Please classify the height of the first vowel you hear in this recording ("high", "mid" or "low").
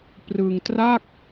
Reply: high